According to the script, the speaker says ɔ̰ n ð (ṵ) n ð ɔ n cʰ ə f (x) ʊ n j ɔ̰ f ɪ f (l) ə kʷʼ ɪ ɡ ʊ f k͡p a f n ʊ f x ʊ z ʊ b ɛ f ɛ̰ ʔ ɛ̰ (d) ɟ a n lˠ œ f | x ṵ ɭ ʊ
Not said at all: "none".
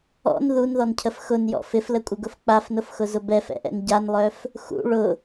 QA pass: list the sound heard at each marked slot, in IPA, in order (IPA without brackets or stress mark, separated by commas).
u, x, l, n